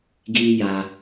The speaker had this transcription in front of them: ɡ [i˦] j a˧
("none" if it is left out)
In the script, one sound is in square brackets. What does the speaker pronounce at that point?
i˦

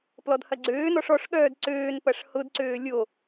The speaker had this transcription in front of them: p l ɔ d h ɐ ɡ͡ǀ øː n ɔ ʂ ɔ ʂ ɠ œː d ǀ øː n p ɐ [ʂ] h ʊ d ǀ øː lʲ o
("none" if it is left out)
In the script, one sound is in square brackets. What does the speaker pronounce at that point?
ʂ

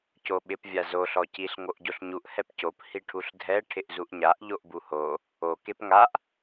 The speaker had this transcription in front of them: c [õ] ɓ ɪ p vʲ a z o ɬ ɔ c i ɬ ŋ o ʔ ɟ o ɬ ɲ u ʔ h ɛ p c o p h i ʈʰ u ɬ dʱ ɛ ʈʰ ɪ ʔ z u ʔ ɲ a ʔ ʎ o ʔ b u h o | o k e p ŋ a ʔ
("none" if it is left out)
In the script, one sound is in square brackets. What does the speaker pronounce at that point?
o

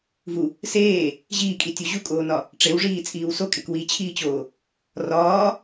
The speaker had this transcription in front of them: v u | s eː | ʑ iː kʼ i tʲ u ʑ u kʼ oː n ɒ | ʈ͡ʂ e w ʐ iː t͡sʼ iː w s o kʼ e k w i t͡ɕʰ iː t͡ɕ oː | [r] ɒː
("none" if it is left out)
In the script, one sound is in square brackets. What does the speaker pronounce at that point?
r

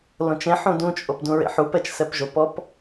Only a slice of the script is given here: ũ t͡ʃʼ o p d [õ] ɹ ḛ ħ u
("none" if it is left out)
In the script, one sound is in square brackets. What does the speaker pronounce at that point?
ũ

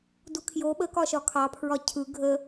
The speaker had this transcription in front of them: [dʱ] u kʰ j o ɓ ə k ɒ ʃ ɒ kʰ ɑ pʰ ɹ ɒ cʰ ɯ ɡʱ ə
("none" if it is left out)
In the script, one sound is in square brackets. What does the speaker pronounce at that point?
d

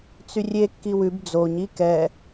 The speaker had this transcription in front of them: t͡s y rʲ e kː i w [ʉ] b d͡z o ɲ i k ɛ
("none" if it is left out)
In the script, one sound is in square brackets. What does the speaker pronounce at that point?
ʉ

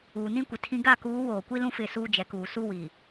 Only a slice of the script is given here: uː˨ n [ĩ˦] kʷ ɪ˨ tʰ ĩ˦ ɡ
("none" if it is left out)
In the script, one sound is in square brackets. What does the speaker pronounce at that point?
ĩ˦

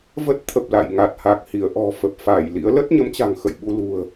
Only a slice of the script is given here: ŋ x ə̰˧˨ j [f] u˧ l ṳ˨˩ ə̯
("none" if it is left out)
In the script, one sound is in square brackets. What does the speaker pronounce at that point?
ɓ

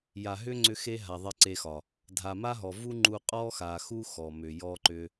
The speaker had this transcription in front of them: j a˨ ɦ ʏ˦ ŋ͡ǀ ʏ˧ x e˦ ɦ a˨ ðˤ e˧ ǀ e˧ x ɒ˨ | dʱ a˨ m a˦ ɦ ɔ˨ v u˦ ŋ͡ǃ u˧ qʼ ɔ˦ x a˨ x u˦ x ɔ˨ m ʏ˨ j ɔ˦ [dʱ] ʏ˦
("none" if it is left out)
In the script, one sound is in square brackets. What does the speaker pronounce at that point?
ǃ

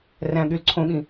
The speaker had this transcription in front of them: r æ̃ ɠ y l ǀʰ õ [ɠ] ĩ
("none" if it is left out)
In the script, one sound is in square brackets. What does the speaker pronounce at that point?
ɠ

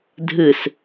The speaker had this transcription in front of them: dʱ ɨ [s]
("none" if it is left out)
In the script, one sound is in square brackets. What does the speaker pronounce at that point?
s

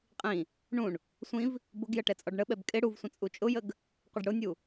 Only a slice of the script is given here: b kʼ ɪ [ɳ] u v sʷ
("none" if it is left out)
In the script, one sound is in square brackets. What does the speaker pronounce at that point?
ɽ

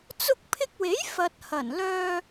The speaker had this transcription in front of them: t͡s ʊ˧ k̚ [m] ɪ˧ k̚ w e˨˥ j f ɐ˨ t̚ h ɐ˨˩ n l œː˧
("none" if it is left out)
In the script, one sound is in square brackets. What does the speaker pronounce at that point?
pʰ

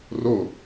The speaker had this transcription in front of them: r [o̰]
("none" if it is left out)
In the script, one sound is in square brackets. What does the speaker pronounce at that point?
o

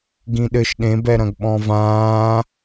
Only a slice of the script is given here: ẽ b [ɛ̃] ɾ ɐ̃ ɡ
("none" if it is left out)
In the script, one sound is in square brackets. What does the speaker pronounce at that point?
ɛ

